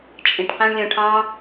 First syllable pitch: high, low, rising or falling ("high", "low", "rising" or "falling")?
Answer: low